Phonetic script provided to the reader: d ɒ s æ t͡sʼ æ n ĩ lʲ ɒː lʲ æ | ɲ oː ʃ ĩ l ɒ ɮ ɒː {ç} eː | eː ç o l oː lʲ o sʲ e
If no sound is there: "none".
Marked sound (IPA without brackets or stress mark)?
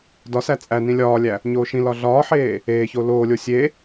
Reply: ħ